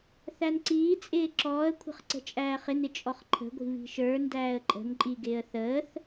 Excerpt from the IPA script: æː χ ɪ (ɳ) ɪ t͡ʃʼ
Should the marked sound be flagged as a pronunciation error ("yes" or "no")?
yes